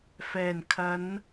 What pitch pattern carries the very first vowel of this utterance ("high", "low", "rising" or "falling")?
low